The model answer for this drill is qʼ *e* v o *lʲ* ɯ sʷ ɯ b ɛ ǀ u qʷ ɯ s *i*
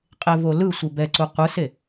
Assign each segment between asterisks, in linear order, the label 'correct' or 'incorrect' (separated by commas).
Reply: correct, incorrect, incorrect